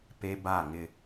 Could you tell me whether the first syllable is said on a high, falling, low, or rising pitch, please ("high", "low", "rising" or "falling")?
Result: high